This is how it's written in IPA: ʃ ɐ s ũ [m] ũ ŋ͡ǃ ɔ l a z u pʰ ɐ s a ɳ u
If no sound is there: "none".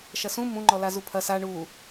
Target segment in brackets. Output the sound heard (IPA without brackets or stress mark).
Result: m